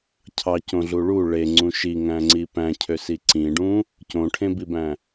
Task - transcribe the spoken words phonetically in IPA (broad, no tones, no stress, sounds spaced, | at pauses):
cʰ ɑ c õ ɮ u ɭ u ɭ e ŋ͡ǀ ũ ʃ i ŋ æ̃ ŋ͡ǀ i p æ̃ cʰ ø s i ǀ ĩ ɖ ũ | c õ ʈʰ ẽ b i b æ̃